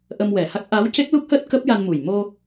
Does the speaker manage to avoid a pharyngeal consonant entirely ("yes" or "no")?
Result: yes